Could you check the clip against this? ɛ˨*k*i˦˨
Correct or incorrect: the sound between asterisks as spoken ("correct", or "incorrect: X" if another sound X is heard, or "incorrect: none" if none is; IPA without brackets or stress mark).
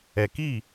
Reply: correct